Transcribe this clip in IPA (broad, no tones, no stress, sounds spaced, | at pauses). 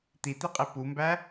t̪ i t̪ i qʼ i p u m b æ